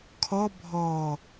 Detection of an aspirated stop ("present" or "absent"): present